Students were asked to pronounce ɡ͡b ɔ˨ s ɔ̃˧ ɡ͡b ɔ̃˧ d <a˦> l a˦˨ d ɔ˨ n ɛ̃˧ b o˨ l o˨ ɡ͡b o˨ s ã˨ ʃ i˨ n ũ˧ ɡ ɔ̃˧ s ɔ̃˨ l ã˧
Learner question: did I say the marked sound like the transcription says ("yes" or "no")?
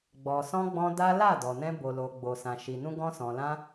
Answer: yes